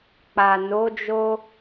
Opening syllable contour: low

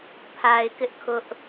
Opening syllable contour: low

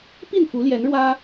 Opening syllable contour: falling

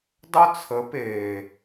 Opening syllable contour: high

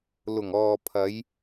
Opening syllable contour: low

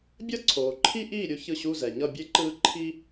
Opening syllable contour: high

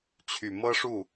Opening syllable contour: low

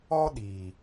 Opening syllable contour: high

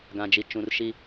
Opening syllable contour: low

